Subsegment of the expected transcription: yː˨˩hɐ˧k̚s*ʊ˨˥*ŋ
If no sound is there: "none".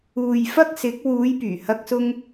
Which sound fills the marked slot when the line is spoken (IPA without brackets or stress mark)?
ʊ˧